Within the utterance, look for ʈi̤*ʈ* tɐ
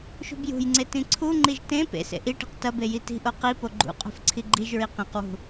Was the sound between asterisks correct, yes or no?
no